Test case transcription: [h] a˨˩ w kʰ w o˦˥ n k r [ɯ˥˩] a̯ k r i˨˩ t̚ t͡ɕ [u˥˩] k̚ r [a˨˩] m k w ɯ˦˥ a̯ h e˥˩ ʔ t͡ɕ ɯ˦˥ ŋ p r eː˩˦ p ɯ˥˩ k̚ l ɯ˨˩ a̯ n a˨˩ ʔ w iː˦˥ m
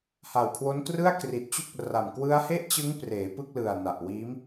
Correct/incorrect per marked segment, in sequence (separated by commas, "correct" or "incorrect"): correct, correct, correct, correct